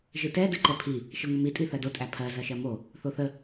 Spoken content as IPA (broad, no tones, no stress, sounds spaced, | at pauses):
ʒ ɨ t ɛ d ɨ ǃ ɛ pʰ i | ʃ ɨ ŋʷ ə m i tʼ i θ ɜ d o tʼ æ pʰ ɜ z ɜ ʃ ɜ m o | θ o θ ə